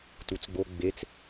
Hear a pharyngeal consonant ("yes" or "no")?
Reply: no